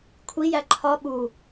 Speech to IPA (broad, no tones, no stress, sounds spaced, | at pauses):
kʷʰ i j æ ǃʰ ɒ ɓ u